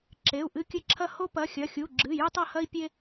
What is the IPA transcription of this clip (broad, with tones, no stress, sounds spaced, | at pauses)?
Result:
ǁ e˩˧˩ u̯ ʔ ɨ˦˨ kʲ ɘ˦˨ ǁʰ ɐ˦ h o˦ p ɐ˩˧˩ xʲ ɐ˩˧˩ xʲ u˩˧˩ ɡ͡ǁ ɨ˩˧˩ j ɨ˦ tˤ ɐ˦˨ h ɐ˦ i̯ pʲ e˦